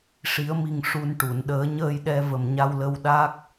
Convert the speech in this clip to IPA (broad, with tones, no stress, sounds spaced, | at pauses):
ʂ i˨˩˦ ə̯ m i˨˩ ŋ ʂ u˧ n ʈ u˨˩˨ n ɗ əː˨˩˦ ɲ əː˧ j ɗ ɛ˧ v ə˨˩ m ɲ a˧ w l ə˧ w ɗ a˦˥ k̚